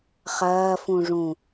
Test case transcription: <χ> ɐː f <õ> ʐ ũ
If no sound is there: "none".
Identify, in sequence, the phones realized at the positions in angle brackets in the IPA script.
χ, ũ

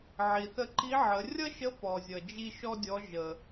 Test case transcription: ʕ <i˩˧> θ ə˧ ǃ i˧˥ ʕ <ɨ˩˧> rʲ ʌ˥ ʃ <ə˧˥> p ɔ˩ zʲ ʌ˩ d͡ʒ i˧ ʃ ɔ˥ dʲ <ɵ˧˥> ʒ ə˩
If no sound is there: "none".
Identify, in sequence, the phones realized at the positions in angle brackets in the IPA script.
i˩, ə˩˧, ə˧˥, ɔ˧˥

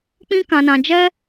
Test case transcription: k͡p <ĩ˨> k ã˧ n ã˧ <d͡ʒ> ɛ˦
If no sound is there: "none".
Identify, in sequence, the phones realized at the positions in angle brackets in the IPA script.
ĩ˦, d͡ʒ

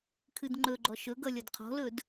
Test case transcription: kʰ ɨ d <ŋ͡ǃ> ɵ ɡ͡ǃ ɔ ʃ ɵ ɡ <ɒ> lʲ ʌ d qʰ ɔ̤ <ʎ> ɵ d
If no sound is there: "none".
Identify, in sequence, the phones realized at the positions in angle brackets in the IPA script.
ŋ͡ǃ, ʌ, l

